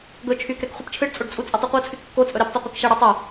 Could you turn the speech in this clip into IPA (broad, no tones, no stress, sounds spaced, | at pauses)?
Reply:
ɡ ɵ t͡ʃʰ y k ɾ ɛ k χʷ i p t͡ʃʰ ɯ ɖ t͡sʼ o ɖ t͡sʼ u t͡sʼ y tˤ u qʷ ɤ t͡sʰ y kː o t͡sʼ ɵ ɾ i p tˤ ɛ qʷ ɯ k ʃ ɛ ɽ ɤ tˤ o